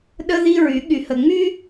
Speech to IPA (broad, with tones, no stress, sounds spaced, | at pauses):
ɗ ə˦ ð i˦ ɹ y˨˦ ɠ y˨ h ə˨ ŋ͡m y˦